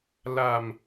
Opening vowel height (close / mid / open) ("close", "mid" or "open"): open